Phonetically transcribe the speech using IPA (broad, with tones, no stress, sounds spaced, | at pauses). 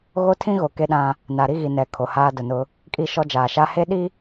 ɣ o˦ tʰ ĩ˦ ɣ o˨ k e˦ ɗ ã˦ | n a˨ ɾ i˦ ɣ i˨ n ɛ˨ kʰ o˨ h aː˦ d ʊ˨ n ʊ˦ | kʼ i˦˨ ʃ ɔ˦ d͡ʒ aː˨ ʃ a˦ h e˦ ɗ i˦